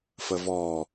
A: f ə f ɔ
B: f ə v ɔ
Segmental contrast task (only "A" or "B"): B